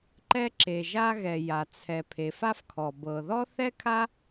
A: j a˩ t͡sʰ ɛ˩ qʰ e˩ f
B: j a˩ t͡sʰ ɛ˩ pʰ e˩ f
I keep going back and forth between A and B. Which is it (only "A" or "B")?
B